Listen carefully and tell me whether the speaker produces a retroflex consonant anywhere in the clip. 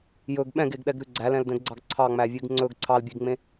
no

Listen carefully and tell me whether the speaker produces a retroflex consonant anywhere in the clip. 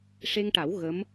yes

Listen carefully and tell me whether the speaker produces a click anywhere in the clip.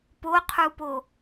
no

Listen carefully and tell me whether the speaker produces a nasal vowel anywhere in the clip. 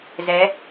no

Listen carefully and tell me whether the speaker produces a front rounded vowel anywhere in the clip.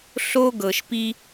no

